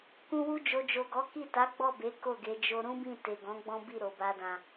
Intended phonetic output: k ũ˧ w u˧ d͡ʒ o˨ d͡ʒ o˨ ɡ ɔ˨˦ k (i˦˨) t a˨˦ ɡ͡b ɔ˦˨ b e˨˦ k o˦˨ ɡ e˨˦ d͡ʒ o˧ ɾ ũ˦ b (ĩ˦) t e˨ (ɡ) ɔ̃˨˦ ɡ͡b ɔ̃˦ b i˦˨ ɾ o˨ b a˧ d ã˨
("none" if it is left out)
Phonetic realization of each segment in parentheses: i˦˨, ĩ˦˨, ɡ

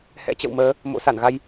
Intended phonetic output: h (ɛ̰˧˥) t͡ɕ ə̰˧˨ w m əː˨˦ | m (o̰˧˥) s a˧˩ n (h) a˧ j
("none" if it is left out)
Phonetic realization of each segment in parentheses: ɛ̰˧˥, o̰˧˥, ɣ

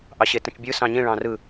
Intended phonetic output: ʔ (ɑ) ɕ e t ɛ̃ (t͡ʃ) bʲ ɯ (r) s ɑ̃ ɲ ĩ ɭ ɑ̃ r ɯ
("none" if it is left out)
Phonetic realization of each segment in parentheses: ɑ, t͡ʃ, none

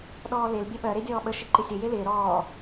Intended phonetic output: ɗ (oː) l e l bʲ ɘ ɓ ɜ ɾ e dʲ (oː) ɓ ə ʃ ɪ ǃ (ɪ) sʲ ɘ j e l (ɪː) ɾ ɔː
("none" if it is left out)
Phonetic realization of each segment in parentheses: ɔː, ɔː, ɪ, ɪː

